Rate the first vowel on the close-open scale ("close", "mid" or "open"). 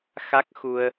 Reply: open